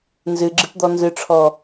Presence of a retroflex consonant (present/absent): present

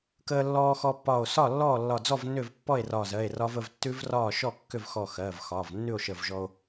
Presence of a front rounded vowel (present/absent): present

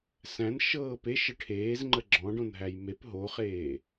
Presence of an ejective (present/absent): absent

